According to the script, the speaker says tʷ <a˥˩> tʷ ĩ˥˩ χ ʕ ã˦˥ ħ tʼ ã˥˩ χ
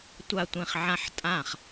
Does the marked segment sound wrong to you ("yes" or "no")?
no